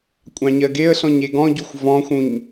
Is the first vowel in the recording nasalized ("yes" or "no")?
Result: yes